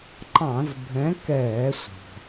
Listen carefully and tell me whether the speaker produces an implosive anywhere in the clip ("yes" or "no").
no